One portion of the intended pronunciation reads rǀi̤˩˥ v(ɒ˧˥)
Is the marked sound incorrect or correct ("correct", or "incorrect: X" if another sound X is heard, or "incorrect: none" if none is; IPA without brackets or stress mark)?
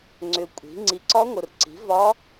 correct